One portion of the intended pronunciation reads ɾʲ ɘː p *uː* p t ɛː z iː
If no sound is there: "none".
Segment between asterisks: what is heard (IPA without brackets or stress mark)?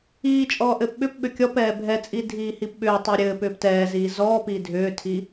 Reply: ʏː